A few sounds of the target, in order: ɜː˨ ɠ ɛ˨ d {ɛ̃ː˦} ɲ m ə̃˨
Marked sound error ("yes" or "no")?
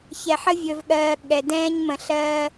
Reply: no